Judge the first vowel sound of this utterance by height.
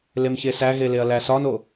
mid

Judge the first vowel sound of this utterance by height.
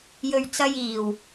mid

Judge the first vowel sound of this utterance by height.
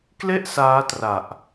mid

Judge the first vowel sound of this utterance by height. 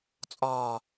low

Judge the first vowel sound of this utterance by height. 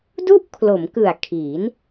high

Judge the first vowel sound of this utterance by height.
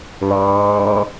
low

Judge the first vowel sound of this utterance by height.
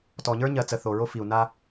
mid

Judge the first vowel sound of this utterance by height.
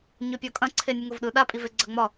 high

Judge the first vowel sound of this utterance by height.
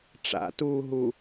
low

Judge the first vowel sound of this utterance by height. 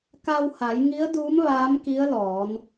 low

